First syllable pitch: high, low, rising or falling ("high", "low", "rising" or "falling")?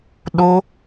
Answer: high